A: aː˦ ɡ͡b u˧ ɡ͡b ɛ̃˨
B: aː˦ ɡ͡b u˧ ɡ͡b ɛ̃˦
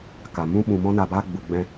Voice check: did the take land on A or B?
B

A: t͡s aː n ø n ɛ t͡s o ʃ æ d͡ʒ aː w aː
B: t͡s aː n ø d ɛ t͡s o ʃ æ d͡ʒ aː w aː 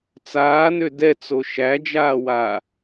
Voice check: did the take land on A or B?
B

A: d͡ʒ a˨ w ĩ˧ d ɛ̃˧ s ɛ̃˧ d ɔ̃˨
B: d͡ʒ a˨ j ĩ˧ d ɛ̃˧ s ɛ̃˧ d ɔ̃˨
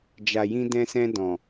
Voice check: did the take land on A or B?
B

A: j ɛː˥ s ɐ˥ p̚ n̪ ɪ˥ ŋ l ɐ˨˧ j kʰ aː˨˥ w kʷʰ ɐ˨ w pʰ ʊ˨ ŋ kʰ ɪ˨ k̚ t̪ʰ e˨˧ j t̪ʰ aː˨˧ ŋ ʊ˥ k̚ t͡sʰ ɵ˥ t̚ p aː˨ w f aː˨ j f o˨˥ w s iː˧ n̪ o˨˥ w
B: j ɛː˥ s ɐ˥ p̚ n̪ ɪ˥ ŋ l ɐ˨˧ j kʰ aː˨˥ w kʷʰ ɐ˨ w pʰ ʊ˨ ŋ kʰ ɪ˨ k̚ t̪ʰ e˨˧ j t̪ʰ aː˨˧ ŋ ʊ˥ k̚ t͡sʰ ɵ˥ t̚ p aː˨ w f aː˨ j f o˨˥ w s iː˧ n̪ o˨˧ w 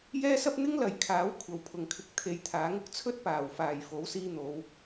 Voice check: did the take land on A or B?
B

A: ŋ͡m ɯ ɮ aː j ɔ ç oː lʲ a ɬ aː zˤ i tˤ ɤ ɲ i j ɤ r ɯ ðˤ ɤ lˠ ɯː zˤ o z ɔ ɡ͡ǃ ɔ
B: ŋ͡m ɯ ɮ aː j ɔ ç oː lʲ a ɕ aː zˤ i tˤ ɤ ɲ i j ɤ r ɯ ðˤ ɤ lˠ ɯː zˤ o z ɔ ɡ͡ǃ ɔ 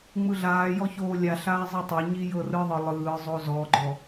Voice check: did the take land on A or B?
A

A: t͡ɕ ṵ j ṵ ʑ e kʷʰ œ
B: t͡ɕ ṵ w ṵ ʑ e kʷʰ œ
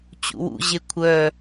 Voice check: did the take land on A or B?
B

